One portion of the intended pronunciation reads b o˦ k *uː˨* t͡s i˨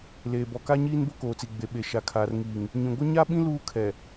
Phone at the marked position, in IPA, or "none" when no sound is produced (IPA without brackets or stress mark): oː˨